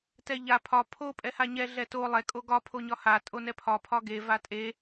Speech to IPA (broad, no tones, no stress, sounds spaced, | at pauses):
t ɛ ʎ a pʰ ɒ pʰ o pʼ ɛ h a ɲ ɛ ɮ ɛ t o lˠ ɛ kʼ o ɡ ɒ pʰ o ɲ ɒ h a tʼ o n ɛ pʰ ɒ pʰ ɒ ɡ e v a tʼ e